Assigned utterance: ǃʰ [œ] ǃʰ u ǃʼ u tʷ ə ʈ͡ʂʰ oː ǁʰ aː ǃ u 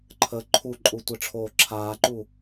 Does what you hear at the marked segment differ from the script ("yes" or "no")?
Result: yes